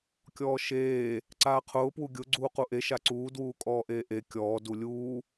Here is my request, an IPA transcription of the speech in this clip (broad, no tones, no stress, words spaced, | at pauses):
kʲɔːʃeː | ǀaːqʰʊː pwuɡʲʊ ɡ͡ǀuːquʔe ʃaǀuː dwuːkʼɔːʔeːʔe kʲɔː dulʲuː